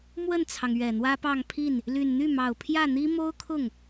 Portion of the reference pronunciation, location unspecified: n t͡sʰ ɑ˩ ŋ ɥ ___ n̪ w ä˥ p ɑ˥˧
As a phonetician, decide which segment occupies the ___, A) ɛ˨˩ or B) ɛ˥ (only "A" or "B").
A